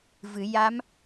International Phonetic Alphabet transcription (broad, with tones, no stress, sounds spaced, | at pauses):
v ɨ˨˩˦ j a˧˥ m